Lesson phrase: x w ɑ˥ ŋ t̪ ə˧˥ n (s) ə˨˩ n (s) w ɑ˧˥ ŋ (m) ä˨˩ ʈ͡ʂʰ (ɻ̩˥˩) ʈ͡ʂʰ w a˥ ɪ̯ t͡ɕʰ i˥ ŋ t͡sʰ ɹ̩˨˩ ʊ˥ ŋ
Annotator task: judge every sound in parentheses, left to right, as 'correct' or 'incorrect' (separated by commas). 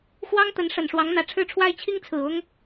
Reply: incorrect, incorrect, incorrect, correct